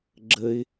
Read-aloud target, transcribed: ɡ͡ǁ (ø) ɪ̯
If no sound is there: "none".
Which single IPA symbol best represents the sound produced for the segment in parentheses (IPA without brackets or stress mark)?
ə